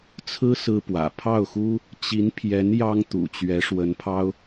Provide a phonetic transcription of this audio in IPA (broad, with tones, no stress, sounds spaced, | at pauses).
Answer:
t͡sʰ ɹ̩˥ s ɹ̩˥ p w ä̰˨˩ pʰ ɑ˥˩ ʊ̯ x u˥ | t͡ɕ i˧˥ n pʰ j ɛ˧˥ n j ɑ˥ ŋ t̪ ṵ˨˩ t͡ɕ ɥ ɛ˧˥ ʂ w ə˧˥ n pʰ ɑ˥ ʊ̯